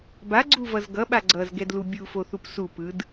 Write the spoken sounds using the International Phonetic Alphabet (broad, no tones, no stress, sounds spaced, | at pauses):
b a ɡ͡ǀ u v ʌ z ɡ ʌ ɓ a ɡ͡ǀ ʌ z ɡ ɛ d l u bʲ u f o θ u p s u p ɯ d